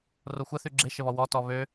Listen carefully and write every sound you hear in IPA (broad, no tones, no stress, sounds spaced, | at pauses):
r o xʷ ə θ y ɡ͡ǁ e ʃ ə β ɔ w ɔ t ɔ β ø